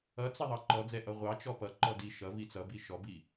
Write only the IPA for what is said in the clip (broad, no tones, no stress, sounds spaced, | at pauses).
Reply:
ʌ t͡s ə ðˤ ɑ ǃ ɔ d͡z ɛ ʔ ʌ ʁʷ ɑ t͡ʃ ɔ p ʌ ǃ ɔ d i ʃ ʌ v i t͡s ʌ b i ʃ ɔ b i